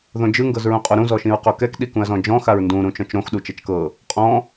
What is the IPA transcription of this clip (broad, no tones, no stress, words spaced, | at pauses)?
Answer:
ðõd͡ʒɯ ŋɡɤzɹũqʼoɾũ zɔʃĩɹqokɛk ɗikũɐ̯zɔ̃d͡ʒɔ̃ xaɹndũ ɾũt͡ʃɔ̃t͡ʃɾõx ɗut͡ʃɛt͡ʃkɤ | qʼɔ̃